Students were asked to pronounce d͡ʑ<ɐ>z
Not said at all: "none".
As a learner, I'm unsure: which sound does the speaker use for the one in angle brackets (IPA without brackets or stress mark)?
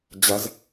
ɐ